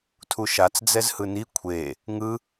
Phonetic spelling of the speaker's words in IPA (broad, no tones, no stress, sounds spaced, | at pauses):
tʰ u ʃ a t͡s d͡z ɛ z h ɯ n i kʷʰ e | ŋ ɯ